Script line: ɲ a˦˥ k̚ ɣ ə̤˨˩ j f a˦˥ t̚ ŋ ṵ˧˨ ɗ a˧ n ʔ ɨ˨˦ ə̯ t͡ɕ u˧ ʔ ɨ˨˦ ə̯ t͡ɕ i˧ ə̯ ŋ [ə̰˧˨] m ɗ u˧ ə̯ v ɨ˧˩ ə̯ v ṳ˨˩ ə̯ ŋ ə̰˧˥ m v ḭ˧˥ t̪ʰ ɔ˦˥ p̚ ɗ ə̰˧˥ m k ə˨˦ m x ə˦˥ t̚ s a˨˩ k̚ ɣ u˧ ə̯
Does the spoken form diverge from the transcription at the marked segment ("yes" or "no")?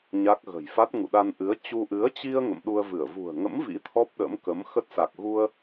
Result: no